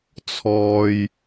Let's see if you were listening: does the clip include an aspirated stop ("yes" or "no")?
yes